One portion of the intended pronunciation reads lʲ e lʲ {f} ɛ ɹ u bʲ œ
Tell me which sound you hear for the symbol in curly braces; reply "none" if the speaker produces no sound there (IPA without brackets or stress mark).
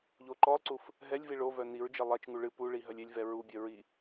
v